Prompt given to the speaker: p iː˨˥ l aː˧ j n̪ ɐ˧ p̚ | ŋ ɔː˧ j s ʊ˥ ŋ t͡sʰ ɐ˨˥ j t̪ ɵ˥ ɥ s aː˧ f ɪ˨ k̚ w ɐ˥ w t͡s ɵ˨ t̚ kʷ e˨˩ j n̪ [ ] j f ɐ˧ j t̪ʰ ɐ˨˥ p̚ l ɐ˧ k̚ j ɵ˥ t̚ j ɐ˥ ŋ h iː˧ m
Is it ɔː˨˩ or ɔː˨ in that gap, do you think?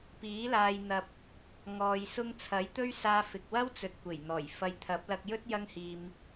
ɔː˨˩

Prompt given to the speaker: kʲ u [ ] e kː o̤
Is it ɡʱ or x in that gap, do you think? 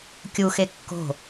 x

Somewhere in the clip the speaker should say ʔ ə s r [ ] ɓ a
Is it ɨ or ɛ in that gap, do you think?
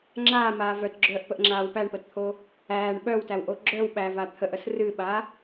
ɨ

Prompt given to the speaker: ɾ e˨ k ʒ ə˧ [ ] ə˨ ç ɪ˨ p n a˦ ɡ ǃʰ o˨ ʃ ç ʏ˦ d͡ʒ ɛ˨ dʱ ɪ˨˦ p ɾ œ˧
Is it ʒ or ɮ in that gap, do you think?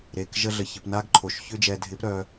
ɮ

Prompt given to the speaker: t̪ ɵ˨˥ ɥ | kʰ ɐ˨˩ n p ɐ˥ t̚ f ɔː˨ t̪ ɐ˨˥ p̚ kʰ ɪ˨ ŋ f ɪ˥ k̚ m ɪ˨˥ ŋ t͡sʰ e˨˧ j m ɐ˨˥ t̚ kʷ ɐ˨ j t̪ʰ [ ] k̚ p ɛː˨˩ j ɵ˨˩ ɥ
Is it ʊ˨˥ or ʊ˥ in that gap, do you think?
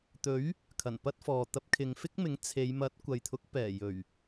ʊ˨˥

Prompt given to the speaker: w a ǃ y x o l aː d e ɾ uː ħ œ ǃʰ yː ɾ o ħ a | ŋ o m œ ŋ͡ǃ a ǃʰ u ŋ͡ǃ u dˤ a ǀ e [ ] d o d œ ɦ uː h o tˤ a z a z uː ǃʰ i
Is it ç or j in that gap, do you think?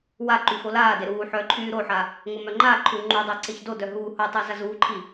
ç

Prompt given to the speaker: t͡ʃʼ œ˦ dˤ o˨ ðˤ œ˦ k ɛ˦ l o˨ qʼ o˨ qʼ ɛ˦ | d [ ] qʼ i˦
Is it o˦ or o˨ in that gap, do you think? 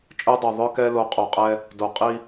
o˨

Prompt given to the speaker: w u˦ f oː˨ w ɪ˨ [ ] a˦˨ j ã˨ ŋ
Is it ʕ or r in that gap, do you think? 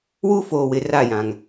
r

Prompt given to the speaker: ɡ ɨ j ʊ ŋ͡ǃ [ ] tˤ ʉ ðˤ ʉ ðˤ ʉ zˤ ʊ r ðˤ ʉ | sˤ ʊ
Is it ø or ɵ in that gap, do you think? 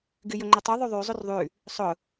ɵ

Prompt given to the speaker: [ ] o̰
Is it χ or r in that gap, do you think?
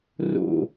r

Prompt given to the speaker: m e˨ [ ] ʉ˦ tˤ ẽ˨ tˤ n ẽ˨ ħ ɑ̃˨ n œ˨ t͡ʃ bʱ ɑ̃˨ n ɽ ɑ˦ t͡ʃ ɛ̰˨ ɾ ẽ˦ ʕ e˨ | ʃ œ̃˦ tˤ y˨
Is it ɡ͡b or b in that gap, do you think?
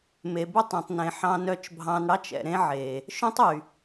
b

